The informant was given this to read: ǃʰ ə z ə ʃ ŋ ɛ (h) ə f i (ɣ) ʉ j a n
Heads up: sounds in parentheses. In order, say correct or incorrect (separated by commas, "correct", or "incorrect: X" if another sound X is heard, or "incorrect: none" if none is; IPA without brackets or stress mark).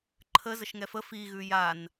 incorrect: f, correct